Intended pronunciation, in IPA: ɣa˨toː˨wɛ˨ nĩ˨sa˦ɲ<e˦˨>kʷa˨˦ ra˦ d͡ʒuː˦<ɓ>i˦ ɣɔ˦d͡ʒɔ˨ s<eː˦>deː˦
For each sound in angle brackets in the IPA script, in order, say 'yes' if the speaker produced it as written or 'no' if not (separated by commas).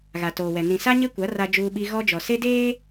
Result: no, yes, no